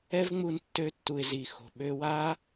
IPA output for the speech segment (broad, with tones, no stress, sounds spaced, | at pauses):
ɛ˦ v ŋ͡m u˧ n tː ø˧ tː u˨ ɪ̯ z i˨ x o̤˨ ɓ ø˧ w a˦